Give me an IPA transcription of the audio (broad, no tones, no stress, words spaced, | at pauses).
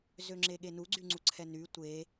zøŋ͡ǁeɠenu ɡ͡ǀyŋ͡ǀuǀʰɛny tʷe